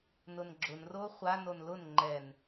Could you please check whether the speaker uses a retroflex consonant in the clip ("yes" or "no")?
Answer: no